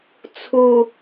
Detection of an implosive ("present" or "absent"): absent